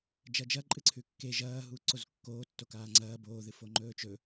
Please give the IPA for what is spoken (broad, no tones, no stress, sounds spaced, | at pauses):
d͡ʒ ɐ d͡ʒ ɐ ǃʼ ɨ ǀʰ ʉ kː e ʒ ɐː ɦ uː ǀ o z kː oː tː o k aː ŋ͡ǀ ɐː b oː ð ɨ f o ŋ͡ǃ ɵː t͡ʃ ɵ